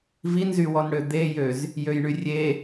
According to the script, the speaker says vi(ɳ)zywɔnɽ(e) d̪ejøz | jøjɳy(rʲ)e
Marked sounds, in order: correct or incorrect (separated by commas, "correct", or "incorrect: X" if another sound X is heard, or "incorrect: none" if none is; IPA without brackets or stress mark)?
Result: incorrect: n, incorrect: ø, correct